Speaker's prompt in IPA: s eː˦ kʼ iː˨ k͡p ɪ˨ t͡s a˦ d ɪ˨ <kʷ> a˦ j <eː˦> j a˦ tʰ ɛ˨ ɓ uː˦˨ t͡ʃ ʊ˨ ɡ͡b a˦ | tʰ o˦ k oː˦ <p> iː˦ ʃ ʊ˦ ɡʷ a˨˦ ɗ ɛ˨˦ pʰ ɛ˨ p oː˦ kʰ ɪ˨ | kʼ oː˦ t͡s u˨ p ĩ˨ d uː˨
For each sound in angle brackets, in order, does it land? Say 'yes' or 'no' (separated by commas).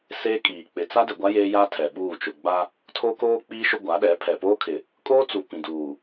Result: no, yes, no